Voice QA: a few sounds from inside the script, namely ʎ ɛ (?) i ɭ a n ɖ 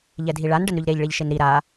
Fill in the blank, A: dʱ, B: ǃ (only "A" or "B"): A